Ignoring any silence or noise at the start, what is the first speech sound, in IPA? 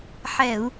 ħ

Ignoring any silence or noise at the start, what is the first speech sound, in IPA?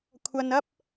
kʷʰ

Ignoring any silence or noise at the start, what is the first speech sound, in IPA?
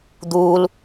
d̪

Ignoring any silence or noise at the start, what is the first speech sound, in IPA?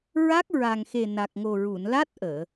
ɹ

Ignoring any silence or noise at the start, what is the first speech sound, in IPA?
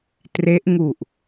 t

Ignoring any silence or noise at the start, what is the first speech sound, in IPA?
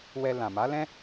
w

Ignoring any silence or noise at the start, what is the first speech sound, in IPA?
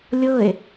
lʲ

